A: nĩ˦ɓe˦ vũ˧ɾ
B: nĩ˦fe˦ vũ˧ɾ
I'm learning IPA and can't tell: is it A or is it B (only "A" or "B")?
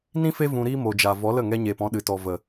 B